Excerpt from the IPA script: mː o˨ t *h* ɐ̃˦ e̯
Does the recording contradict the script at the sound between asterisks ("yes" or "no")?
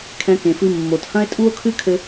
no